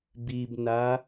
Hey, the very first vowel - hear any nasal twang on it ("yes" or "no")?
no